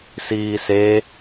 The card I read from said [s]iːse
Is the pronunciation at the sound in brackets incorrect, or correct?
correct